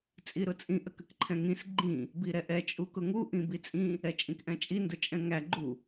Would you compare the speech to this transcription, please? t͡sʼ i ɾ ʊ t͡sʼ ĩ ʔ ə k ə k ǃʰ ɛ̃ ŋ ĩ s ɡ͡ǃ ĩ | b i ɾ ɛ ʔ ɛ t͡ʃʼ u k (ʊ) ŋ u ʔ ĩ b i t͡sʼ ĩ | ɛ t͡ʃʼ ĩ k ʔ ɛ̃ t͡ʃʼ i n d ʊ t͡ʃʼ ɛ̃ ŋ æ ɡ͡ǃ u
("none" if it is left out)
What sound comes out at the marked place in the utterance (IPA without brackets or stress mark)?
ʊ